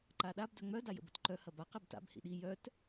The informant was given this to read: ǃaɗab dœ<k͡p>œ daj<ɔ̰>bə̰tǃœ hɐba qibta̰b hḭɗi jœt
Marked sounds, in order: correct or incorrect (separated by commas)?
incorrect, incorrect